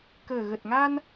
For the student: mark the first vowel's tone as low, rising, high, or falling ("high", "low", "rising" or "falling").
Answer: low